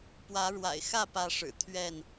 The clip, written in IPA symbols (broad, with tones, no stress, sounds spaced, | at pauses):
p w ä˨˦ ɻ w a̰˨˩ ɪ̯ x ä˥˨ p ä˨˦ ʂ ɻ̩˨˩ t̪ʰ ɥ ɛ˥˨ n